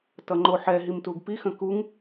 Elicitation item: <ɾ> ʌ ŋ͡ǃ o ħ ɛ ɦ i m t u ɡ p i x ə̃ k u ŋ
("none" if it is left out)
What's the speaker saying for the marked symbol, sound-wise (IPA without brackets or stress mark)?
t